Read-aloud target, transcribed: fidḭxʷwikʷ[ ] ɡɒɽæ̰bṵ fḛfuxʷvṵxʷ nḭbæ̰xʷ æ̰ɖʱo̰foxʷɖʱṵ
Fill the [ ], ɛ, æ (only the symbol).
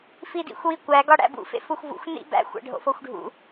æ